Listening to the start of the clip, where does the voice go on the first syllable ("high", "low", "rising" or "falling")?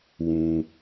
low